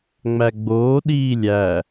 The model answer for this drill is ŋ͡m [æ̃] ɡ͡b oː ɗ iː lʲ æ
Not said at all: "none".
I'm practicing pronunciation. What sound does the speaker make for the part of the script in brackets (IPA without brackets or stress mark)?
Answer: æ